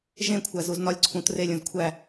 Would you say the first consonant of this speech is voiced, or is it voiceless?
voiced